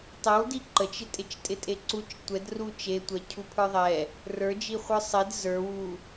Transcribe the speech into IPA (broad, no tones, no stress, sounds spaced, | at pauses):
tˤ ɛ w d i ǃ ə t͡ʃ ɪ tʼ ɪ t͡ʃ tʼ ɪ tʼ e ǀ u t͡ʃ tʷ ɛ d r u t͡ʃ e tʷ ɛ cʰ u pʰ ə˞ ðˤ ɛ | r ə˞ d͡ʒ i χʷ ə˞ sˤ e d z ə˞ w u